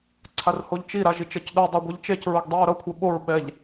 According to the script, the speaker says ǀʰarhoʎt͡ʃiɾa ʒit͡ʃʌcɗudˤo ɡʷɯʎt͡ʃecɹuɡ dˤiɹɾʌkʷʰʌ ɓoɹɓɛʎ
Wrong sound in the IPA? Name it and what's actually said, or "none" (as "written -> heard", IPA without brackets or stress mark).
none